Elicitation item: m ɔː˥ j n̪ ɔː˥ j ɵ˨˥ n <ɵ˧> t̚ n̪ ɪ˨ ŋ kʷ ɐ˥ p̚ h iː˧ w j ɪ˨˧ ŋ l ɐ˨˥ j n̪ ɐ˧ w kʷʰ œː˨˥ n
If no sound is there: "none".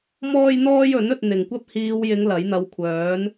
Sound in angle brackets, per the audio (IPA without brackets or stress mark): ɵ˧